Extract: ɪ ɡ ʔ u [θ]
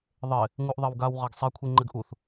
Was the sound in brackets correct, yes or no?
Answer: yes